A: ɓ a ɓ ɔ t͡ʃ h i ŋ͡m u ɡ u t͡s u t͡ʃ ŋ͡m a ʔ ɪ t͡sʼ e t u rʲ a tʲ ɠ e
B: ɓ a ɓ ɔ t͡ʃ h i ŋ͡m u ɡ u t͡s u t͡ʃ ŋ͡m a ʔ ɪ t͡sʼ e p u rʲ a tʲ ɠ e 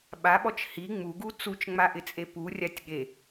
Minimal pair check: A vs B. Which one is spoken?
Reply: B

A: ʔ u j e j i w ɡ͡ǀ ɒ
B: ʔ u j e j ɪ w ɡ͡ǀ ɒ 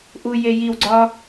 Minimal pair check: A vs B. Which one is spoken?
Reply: A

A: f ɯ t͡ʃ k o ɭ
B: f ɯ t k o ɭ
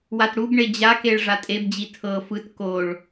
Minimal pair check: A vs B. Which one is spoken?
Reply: B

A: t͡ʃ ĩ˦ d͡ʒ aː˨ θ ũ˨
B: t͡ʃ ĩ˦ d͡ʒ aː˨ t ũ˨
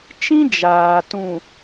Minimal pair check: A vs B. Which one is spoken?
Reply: B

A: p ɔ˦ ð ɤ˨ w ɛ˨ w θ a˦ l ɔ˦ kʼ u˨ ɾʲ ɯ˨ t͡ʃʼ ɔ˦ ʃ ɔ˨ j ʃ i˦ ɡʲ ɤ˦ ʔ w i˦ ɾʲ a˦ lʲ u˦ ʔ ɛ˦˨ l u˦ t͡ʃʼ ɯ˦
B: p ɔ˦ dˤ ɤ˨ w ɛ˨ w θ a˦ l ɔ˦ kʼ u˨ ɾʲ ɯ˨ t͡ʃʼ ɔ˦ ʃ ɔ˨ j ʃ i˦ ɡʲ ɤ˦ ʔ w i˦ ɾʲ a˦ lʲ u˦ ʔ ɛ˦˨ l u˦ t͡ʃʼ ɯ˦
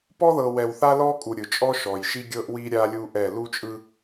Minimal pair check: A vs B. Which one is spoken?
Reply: A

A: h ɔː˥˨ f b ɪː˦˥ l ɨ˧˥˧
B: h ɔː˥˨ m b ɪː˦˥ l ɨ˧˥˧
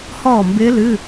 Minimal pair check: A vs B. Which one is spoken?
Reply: B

